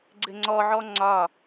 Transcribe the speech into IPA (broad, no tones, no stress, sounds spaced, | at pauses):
ɡ͡ǀ ɘ ŋ͡ǀ ɔ ʕ ɔ ŋ͡ǀ ɒ